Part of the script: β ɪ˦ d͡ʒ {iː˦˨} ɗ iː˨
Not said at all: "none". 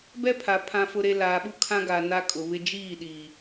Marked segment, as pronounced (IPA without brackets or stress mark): iː˦˨